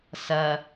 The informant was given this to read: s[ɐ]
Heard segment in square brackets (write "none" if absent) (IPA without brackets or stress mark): ɐ